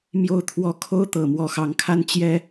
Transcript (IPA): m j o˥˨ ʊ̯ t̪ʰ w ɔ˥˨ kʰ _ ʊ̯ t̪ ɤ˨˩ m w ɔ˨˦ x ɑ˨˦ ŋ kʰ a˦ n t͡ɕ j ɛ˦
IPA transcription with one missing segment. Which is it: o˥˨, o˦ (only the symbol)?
o˦